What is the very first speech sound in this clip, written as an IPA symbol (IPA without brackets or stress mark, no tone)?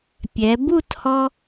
pʲ